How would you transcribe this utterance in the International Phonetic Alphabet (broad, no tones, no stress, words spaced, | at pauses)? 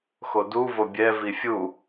xodu vobʲɛ vifʲu